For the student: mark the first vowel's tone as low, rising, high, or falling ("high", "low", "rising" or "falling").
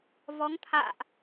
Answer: rising